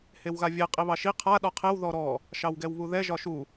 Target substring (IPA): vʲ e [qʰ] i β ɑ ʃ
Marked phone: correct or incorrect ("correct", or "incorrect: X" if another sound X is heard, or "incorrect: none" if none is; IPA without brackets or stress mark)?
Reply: incorrect: qʼ